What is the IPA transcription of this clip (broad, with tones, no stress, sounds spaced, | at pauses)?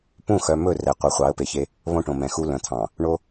p ũ˦˨ x œ˨ m ɵ˦˨ r ɛ˨ qʷ œ˨ χʷ ɑ˨˦ ə̯ p e˨ ç e˦ | β õ˦ ʈ õ˨ m ɛ̃˨ x u˦ l œ̃˨ t̪ʰ ɑ̃˨ | ɳ o˦